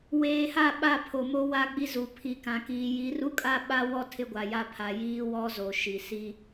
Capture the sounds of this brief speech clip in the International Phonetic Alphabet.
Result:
w eː˨ h a˦˨ ɓ a˦˨ pʰ o˨ m o˦ w a˦ ɡ͡b i˦ z u˨ pʰ i˨ k ã˨ k iː˨ j i˨˦ r u˦ kʼ a˦ ɓ a˦ w ɔ˦ tʰ ɪ˦ ɡʷ a˨ j a˦ pʰ a˨ j iː˦ w ɔ˦ z o˨ ʃ i˨ s i˦

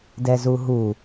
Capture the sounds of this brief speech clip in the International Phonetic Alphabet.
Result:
d ɛ z u ɦ u

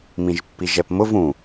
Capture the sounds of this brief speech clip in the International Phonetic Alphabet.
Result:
m ĩ ʒ pː i ʒ ɛ p m ʊ v ũ

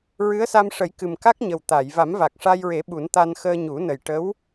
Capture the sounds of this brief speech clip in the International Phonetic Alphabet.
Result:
ɹ ɨ˧˥ ə̯ s a˧ m ʂ ə˨˩˦ j k ɨ˨˩ m k a˦˥ k̚ ɲ ə˨˩ w t̪ a˨˩˨ j v a˨˩˦ m v a˨˩ k̚ ʂ a˧ j ɹ e˨˩˦ ɓ u˨˩˦ n t̪ a˧ n x əː˧ ɲ u˨˩˦ n ə˨˩ j ʈ ə˧˥ w

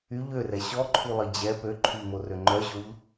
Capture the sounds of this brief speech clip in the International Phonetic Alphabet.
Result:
y ʎ ø r ɛ ɕ ɔ ǃʰ u lˠ i d͡ʑ ɛ p ø ǃʰ y ʎ m o r ø ŋ͡ǃ œ ʑ o ʎ

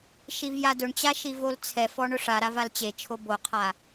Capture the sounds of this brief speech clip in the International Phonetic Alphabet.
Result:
ʃ i v j a d ʊ ɳ t͡ɕ a ʃ i v o l t͡sʰ ɛ f ɔ ɳ ʊ ʂ a ɾ a v a l t͡ɕ e t͡ʃʰ o b o qʰ a

